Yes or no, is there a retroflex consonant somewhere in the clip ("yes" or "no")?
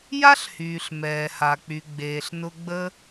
no